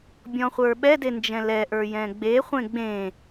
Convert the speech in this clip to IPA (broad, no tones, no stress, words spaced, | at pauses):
bʲɔ̃χʷə˞ɓɛde nd͡ʒɛ̃lɛʔə˞ jɛ̃ɡ͡beχʷẽ ɡ͡bẽ